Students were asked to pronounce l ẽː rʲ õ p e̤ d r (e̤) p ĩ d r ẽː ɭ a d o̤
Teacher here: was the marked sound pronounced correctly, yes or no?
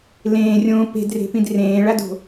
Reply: yes